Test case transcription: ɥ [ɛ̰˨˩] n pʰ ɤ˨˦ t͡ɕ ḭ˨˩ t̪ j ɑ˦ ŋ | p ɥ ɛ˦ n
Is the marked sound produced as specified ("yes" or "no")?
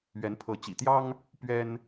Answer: no